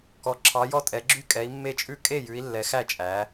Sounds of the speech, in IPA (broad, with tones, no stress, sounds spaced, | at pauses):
k ɔ˨˦ ǁʰ ɑ˨˦ j ɔ˥˩ tʼ ɛ˨˦ ɡ͡ǁ y˥˩ kʼ ɛ˨˦ i̯ mː e˥˩ t͡ʃʼ ʉ˥˩ kʼ e˥˩ j ʉ˨˦ i̯ lː ɛ˨˦ x æ˥˩ t͡ʃʼ æ˨˦